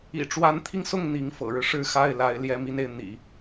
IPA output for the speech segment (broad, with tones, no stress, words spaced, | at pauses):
ḭ˨˩ʈ͡ʂwa˧˥nt̪ʰi˧ŋsʊ˥˩ŋ n̪i˧˥ŋfɤ̰˨˩ɻɻ̩˦ ʂɻ̩˥˧ xa˥˩ɪ̯la˧˥ɪ̯ ljɛ˥˧ mi˥˧ne˥˩ɪ̯ n̪ḭ˨˩˦